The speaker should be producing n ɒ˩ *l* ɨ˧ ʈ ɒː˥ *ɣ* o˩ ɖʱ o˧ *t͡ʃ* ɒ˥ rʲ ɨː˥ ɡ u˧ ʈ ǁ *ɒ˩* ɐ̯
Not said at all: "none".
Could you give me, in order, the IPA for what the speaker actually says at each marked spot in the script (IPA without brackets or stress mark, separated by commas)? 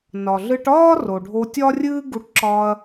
ɮ, r, tʲ, ɒ˧